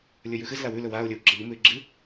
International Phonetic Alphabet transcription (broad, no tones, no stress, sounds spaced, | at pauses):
lʲ ɵ j ʉ x ɨ z l a w ʉ l ɵ w a ʊ̯ lʲ ɵ w ɡ͡ǁ ɐ ʎ u m ʉ ɪ̯ ɡ͡ǁ ɨ